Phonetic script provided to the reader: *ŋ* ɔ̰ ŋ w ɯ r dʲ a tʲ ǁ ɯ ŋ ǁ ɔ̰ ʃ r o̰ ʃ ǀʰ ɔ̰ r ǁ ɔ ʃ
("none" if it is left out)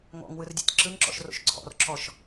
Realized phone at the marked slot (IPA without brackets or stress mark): ŋ